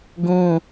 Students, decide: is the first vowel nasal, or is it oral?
nasal